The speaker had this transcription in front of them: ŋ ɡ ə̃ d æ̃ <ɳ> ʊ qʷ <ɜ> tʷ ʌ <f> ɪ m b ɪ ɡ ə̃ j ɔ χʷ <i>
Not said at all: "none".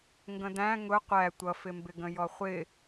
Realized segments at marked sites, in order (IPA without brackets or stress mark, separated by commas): ŋ, æ, f, ɪ